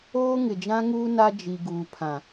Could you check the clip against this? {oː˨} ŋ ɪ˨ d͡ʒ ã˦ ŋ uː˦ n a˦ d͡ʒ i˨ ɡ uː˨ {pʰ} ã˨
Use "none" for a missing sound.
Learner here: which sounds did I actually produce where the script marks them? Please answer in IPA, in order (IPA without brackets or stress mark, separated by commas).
oː˦, pʰ